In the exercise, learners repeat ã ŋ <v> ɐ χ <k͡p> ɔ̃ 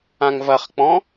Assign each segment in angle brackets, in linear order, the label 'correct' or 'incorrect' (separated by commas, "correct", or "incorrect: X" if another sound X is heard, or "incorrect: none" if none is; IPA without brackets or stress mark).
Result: correct, correct